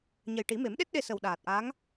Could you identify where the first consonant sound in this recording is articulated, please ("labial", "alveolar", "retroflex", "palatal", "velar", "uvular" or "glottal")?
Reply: palatal